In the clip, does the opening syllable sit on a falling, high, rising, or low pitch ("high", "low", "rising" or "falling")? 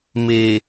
low